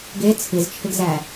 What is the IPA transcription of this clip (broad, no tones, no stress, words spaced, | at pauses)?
ɡe t͡sʰɨzt͡ʃʰɪɡzæ